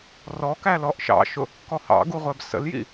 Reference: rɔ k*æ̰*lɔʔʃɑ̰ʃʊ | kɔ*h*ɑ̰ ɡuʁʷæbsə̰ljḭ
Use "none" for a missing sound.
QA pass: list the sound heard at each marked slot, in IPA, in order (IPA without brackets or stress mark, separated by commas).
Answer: æ, h